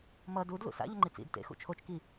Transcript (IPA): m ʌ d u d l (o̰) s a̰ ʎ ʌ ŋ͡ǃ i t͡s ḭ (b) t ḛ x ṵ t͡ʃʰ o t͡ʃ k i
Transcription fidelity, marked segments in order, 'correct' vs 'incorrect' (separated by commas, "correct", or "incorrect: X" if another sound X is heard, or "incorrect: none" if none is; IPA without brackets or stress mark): incorrect: ṵ, incorrect: d